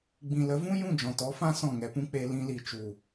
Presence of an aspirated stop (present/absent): absent